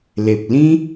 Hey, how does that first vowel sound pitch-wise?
low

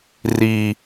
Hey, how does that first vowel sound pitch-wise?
low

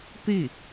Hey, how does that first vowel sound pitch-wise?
falling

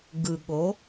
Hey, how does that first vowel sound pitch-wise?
low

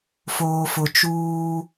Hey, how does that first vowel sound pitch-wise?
low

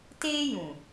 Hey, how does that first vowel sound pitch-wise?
high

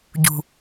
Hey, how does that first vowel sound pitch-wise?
low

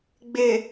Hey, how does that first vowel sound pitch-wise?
low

